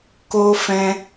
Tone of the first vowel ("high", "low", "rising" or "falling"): high